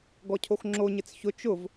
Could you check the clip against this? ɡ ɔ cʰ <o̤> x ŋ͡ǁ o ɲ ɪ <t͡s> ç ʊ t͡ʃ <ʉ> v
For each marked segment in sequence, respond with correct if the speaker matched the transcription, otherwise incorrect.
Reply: incorrect: o, correct, incorrect: ʊ

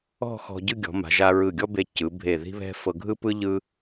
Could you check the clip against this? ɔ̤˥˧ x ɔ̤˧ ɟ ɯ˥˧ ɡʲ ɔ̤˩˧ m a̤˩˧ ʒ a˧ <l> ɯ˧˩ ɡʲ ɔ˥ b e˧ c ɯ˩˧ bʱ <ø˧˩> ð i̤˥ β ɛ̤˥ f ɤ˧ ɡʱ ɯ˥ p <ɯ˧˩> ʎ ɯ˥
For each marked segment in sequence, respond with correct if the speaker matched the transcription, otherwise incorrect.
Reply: incorrect: ɹ, incorrect: e˧˩, incorrect: ɯ˥

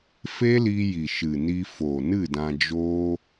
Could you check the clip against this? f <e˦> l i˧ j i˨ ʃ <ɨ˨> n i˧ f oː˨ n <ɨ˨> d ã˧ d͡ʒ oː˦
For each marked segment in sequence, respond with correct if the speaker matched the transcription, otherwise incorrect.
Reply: correct, correct, incorrect: ɨ˦˨

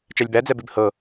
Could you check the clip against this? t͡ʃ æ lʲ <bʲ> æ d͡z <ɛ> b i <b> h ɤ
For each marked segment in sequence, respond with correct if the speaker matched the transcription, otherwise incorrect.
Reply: incorrect: b, correct, correct

